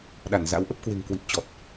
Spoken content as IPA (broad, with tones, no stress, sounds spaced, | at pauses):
ɗ a˧˩ n z a̰˧˥ w ʔ ə˦˥ p̚ k w e̤˨˩ ŋ k w i˨˩ p̚ t͡ɕ ɔ˨˩ t̚